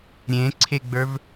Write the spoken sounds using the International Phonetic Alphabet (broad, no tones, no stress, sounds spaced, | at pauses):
ɾʲ ẽ ǀʰ e ɡ͡b ə˞ v